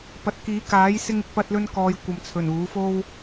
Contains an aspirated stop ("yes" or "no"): yes